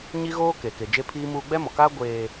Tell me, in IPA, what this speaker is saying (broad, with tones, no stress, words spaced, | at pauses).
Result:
ɲi˦ɣoː˦ke˨ ke˨d͡ʒe˦pʰiː˦muː˦ ɡ͡bɛ˦mɔ˨kaː˦ ɡʷeː˨